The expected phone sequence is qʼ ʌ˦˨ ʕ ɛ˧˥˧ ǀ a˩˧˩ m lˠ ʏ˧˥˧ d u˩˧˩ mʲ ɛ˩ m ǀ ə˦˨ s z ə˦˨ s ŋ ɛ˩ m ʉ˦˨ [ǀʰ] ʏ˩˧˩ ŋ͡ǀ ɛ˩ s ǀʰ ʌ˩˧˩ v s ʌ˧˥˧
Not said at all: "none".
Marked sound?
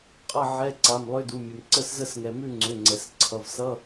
ŋ͡ǀ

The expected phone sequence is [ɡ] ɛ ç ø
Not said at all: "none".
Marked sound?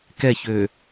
k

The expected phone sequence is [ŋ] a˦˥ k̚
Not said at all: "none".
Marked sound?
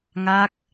ŋ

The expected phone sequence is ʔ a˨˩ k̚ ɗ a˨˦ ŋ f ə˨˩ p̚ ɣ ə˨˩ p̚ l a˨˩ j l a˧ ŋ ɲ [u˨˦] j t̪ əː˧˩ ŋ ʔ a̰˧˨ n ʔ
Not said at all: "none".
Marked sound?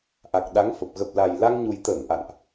u˨˩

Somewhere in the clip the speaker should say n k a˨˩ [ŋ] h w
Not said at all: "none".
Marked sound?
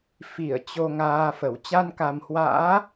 m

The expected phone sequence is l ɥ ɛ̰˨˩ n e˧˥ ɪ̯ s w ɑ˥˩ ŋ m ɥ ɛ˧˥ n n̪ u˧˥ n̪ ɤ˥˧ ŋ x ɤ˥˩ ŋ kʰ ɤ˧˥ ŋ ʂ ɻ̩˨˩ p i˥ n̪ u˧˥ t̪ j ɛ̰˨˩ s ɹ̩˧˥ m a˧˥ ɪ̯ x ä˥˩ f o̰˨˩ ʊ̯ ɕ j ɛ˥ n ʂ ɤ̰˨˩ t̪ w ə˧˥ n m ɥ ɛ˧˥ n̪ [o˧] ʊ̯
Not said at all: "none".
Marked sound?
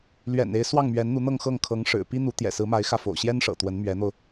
o˧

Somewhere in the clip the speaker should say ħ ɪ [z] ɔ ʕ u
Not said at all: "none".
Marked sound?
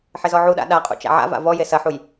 z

